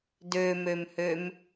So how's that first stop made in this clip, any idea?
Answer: plain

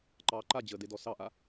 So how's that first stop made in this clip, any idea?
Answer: click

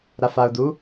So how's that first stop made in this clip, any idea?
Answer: plain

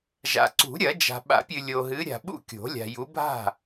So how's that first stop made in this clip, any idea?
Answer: click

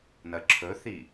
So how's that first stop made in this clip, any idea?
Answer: click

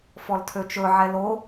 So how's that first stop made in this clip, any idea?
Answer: aspirated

